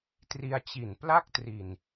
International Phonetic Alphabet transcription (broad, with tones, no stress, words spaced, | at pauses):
tri˧a̯t͡ɕi˨˩npla˥˩k̚tri˨˩n